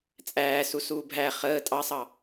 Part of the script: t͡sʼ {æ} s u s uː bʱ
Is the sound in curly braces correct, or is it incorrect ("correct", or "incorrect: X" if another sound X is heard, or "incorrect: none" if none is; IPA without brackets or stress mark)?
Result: incorrect: æː